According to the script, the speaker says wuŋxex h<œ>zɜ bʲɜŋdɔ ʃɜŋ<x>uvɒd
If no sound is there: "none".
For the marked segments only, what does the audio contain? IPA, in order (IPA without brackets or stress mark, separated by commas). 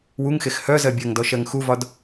œ, x